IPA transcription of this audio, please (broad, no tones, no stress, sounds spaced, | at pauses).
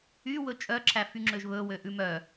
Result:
y w ɵ t͡ʃʼ œ ǁʰ æ f y ŋ͡ǁ ø ʒ β ɵ w ø ʔ ʉ m œ